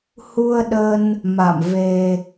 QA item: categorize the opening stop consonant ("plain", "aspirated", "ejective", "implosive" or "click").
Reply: implosive